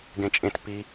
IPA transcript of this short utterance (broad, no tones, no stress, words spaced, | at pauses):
ɡẽt͡ʃʼẽt pi